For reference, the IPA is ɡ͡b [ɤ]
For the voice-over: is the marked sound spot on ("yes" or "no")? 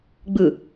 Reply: no